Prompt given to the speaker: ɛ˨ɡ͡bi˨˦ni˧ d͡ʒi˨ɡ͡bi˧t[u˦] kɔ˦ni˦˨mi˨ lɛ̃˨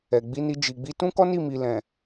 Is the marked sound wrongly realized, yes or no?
yes